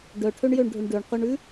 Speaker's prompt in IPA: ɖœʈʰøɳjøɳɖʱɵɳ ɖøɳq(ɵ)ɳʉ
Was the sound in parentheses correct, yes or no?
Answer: yes